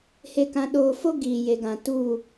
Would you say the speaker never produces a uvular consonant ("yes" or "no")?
yes